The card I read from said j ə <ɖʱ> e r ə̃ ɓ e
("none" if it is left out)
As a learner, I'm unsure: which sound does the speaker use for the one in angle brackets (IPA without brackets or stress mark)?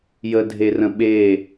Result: dʱ